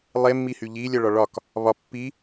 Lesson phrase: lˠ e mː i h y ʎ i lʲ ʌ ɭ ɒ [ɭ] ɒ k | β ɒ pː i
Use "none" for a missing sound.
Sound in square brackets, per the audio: ɭ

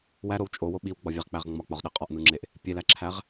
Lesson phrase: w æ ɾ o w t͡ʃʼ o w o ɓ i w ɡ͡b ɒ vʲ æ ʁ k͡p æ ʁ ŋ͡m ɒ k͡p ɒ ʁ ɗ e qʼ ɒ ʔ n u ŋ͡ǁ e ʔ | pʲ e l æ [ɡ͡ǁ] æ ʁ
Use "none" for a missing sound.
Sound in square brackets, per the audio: ǁʰ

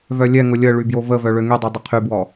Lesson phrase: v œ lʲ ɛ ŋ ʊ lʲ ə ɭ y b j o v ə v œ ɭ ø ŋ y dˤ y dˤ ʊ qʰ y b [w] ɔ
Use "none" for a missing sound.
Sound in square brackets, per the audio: w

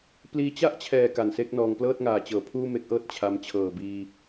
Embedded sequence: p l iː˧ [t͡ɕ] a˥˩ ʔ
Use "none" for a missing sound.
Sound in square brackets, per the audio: t͡ɕ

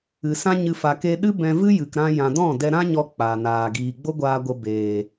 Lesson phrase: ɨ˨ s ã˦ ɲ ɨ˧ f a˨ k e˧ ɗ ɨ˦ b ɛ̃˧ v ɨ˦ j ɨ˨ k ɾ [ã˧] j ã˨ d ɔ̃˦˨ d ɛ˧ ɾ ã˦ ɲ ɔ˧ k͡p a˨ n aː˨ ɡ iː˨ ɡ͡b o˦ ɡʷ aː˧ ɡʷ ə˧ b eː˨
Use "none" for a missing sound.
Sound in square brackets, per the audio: ã˧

